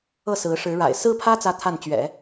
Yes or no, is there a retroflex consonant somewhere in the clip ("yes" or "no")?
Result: yes